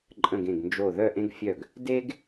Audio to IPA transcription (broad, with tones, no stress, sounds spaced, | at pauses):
ǃʼ ə̃˥˩ ɡ ẽ˥˩ ɡ n d͡ʒ o˥˩ ð œ˥˩ ʔ ẽ˥ ɡ fʲ œ˥˩ ɡ | d e˥ ɡ